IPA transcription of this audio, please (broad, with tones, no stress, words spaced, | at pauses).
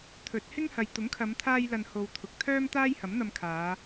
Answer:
t̪ʰɵ˨˥t̚hɪ˥ŋhɐ˨j t̪ʊ˨˥ŋkʰɐ˨˧mt̪ʰaː˧jlɐ˨n ho˧wt̪ʰʊ˨˥k̚ t̪ʰœː˥mt̪aː˥jhɐ˨˥mn̪ɐ˧m kʰaː˨˧